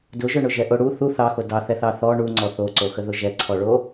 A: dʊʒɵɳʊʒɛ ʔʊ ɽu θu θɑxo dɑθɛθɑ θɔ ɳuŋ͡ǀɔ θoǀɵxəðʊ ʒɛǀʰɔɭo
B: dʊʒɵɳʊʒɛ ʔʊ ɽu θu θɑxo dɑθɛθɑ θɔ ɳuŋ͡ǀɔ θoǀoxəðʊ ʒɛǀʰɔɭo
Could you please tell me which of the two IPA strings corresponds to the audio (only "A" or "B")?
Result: B